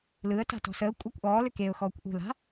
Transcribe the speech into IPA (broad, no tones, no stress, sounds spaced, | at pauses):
l ɯ ə̯ t a̤ t ɔ̤ s əː kʷʼ a kʷ ʔ ɔː l ʏ k e ʊ̯ x ɔː kʷ ʔ ṳ l a̤